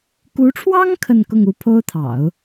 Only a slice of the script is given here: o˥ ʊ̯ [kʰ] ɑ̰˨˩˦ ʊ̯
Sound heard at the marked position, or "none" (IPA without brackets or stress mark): t̪ʰ